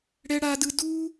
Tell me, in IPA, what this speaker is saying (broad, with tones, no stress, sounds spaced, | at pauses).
ɽ ɛ˦ ɽ a˦ d ɯ˦ d u˦